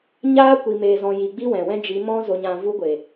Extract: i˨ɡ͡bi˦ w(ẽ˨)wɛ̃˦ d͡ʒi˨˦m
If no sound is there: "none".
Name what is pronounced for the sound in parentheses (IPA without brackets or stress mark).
ɛ̃˨